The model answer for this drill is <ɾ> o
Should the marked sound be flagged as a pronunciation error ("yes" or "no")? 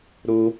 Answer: no